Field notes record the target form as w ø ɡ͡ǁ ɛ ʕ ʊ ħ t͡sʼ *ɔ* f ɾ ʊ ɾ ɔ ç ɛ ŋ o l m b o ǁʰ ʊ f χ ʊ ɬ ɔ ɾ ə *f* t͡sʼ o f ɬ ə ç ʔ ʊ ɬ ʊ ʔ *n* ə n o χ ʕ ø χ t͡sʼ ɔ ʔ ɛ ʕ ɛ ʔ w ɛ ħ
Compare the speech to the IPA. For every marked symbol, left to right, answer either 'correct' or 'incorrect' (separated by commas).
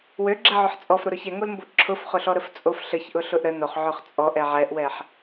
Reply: correct, correct, incorrect